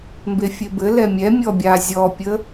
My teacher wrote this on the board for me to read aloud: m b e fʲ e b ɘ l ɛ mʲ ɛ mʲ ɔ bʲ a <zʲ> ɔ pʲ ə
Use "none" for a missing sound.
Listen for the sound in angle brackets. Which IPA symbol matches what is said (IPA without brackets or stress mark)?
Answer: zʲ